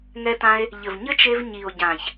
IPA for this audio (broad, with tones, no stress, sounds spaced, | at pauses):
ŋ ɛ˦ t ã˦ e̯ | ʎ ɘ˨ v ɲ ɘ˦ t͡ʃ e˧ v ɲ i˨ o̯ ɟ ã˨ ç